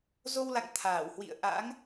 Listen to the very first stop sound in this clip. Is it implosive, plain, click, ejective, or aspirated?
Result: aspirated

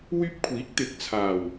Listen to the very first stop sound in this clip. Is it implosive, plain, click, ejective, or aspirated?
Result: plain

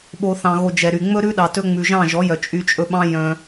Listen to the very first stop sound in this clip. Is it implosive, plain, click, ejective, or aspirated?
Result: implosive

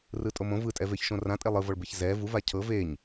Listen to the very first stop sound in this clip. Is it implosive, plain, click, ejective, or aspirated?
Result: ejective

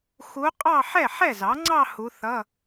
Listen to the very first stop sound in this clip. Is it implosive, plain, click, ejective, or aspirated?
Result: ejective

